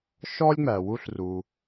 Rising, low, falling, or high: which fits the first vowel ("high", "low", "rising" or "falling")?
high